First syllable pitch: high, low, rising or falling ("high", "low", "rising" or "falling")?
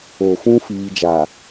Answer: low